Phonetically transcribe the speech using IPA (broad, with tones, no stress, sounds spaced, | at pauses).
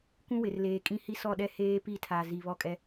kʷ ũ˦ w ɪ˨ r l eː˨ kʼ ĩ˦ h i˦ s ɔ˦˨ ɗ ɛ˦ h eː˦ p i˦˨ tʰ a˨ z i˨ β ɔ˦ kʼ ɛ˦